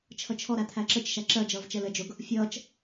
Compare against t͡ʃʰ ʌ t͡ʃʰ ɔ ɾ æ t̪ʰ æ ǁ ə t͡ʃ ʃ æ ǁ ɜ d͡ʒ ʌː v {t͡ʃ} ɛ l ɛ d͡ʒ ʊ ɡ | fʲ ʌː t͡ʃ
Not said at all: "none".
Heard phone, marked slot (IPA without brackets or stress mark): t͡ʃ